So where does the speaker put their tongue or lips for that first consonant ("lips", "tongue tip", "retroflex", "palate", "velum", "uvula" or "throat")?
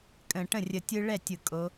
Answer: velum